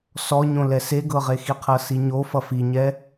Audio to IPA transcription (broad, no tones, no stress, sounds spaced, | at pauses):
s ɔ ɲ õ l ɛ s e ɡ ɤ ʁ e x i qʰ ɤ s i ɲ o f ʌ f i ɲ ɛ